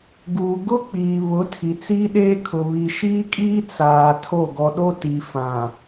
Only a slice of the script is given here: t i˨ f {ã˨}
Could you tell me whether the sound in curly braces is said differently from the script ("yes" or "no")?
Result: no